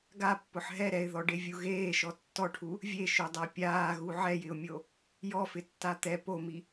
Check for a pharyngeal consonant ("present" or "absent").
present